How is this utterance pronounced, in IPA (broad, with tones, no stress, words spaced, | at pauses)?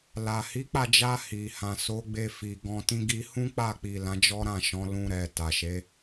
la˨ hi˨˦k͡pa˦˨d͡ʒa˧ hi˨hã˨ so˨˦ɡ͡be˧ fi˨ɡɔ̃˧tĩ˦ ɡi˧hũ˦k͡pa˦˨k͡pi˨ lã˨˦d͡ʒɔ˦ɾã˦˨ʃɔ̃˨˦ lũ˧ɾɛ˨ ta˨ʃe˨˦